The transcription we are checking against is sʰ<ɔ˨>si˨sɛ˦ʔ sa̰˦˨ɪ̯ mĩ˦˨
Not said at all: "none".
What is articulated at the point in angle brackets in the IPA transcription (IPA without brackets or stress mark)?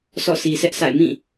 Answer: ɔ̰˦˨